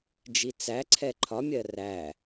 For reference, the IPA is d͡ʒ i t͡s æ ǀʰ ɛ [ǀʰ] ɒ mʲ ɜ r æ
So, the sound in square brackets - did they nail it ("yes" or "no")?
no